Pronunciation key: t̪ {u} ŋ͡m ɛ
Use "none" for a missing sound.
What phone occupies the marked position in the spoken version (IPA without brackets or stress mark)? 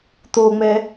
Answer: o